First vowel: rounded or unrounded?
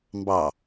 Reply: unrounded